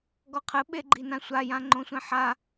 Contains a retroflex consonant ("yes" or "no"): no